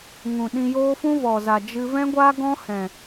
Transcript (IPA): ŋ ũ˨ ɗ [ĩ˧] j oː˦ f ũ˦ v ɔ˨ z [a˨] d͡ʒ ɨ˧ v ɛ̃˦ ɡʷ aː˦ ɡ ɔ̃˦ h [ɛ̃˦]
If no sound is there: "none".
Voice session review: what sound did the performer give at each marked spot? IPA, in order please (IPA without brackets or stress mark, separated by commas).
ĩ˧, a˨, ɛ̃˨